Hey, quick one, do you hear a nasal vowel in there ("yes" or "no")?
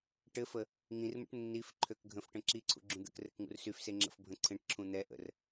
yes